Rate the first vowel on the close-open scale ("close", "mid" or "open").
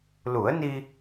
close